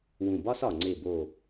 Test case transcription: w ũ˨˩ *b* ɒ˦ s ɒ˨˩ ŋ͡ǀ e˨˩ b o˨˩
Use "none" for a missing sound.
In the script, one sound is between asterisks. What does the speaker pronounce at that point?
b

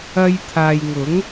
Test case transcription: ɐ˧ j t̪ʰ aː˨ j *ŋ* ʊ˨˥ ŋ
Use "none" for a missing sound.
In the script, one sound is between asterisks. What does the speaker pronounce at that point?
ŋ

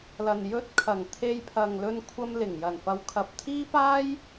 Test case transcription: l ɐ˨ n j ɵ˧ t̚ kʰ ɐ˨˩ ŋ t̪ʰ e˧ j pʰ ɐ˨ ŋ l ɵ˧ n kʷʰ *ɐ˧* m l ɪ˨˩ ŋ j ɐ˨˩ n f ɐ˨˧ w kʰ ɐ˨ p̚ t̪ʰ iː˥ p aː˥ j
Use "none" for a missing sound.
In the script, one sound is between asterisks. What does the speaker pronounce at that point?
ɐ˧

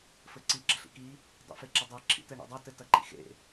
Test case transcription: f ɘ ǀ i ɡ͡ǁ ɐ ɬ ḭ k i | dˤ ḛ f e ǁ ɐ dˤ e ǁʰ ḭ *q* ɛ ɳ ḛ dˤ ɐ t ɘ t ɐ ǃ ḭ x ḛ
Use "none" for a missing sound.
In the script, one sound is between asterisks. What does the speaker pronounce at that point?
t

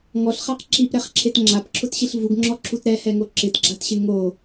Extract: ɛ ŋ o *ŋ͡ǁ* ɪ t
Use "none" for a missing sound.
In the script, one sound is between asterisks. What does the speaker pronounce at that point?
ǁ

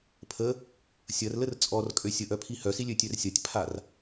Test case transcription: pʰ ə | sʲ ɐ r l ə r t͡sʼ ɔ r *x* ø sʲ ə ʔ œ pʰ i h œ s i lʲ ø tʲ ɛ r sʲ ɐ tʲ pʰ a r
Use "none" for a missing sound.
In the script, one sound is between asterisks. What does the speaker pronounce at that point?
kʼ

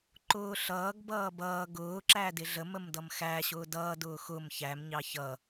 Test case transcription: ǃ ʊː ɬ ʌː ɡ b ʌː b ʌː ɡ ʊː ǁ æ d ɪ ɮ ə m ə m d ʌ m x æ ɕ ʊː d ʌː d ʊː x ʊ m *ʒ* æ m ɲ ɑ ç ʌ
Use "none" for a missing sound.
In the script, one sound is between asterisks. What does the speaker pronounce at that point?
ç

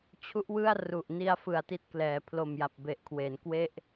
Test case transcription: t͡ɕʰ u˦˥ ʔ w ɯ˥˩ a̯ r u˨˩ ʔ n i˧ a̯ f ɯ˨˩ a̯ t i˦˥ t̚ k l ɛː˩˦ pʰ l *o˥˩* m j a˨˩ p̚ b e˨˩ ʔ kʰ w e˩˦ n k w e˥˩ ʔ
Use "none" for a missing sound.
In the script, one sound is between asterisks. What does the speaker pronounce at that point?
o˨˩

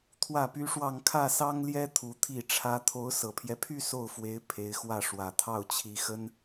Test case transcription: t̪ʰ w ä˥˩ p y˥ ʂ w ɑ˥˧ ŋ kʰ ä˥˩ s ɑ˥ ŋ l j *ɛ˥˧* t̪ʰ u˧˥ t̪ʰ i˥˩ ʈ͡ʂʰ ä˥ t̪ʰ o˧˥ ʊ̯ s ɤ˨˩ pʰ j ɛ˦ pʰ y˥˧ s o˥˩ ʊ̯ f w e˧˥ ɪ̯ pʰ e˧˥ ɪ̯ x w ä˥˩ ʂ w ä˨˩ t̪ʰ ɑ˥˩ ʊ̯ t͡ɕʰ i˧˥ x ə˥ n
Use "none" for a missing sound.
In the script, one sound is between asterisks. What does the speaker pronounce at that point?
ɛ˥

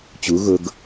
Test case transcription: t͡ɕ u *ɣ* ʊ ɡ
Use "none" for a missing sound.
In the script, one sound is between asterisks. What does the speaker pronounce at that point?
ɣ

